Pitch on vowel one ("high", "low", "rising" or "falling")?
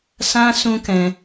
high